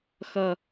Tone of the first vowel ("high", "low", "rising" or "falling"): low